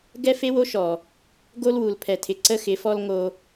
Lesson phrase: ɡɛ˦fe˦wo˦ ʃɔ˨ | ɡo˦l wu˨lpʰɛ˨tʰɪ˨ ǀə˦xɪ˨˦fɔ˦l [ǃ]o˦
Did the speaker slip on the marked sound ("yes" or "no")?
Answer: yes